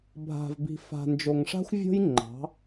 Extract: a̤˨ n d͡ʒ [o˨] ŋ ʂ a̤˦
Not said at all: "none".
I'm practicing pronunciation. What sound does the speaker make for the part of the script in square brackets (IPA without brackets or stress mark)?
o˨